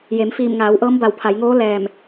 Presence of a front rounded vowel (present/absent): absent